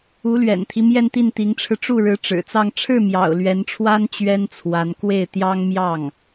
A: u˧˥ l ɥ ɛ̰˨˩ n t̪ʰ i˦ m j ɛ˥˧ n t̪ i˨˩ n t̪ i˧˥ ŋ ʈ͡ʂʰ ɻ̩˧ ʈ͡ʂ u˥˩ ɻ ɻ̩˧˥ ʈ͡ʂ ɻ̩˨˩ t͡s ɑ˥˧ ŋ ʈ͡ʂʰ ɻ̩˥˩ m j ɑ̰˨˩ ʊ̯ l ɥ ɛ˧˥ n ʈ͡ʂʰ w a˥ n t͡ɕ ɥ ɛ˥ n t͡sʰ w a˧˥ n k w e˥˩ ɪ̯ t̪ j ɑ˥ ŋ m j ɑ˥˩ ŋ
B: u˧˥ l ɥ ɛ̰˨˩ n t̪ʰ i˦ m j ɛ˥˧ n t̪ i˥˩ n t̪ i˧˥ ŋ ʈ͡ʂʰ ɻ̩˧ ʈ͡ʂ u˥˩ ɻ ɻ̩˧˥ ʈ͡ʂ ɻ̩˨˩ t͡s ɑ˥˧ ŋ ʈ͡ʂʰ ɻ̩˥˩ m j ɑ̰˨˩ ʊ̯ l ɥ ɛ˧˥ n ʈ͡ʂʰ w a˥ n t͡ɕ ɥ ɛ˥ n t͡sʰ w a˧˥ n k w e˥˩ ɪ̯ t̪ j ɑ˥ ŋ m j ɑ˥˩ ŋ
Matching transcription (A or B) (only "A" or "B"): B